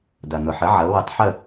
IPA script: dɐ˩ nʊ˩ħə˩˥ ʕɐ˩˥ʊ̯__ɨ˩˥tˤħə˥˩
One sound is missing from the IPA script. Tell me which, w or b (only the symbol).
w